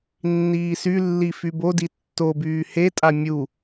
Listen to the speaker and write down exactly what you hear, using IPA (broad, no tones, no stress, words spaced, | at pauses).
nːiːsylːi fybodi tːobyː hetʼa mʲu